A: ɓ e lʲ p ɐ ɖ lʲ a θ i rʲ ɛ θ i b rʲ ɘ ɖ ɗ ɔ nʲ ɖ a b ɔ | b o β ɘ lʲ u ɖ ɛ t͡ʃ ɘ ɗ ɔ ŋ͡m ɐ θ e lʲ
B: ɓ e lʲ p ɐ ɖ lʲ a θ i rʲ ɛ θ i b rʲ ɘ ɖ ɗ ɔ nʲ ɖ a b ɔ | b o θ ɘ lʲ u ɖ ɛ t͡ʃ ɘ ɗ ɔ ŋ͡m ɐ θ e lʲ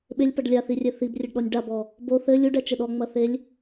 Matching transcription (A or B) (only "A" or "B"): B